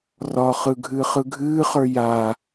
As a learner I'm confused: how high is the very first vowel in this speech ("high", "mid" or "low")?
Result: low